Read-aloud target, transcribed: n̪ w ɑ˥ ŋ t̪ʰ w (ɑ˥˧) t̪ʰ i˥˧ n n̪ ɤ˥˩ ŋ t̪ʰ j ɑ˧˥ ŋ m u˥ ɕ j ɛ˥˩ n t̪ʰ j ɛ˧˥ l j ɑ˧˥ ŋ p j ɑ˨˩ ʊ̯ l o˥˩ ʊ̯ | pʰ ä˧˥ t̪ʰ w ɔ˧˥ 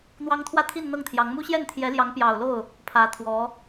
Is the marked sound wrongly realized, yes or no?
yes